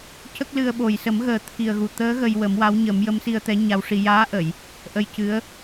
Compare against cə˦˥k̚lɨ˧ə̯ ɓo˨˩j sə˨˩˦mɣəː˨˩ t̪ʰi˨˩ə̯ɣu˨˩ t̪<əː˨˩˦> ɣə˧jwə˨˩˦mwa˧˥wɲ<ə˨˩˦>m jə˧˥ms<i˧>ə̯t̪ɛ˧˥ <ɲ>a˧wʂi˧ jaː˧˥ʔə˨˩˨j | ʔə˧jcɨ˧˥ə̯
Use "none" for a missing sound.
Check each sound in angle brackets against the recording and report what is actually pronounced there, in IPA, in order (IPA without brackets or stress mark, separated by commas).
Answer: əː˧˥, ə˨˩˦, i˧, ɲ